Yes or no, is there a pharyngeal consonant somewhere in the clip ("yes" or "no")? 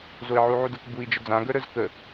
yes